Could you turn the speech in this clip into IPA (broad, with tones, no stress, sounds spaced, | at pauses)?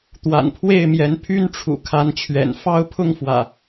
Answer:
t̪ w a̰˨˩ n pʰ w e˥˨ ɪ̯ m j ɛ˨˦ n pʰ y˦ n ʈ͡ʂʰ ṵ˨˩ kʰ a˨˦ n t͡ɕʰ ɥ ɛ̰˨˩ n f ɑ˦ ʊ̯ pʰ ʊ˥˨ ŋ f w ä̰˨˩